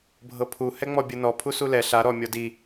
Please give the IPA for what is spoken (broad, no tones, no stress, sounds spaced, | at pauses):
bʱ ɤ pʰ u h ɛ ŋ͡m ɔ bʲ ɯ n ɔ pʰ u s u l ɛ ɬ a ɾ ɔ mʲ ɔ d i